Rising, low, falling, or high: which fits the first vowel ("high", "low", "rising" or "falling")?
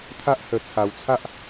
high